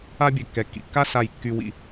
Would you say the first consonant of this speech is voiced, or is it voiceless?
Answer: voiced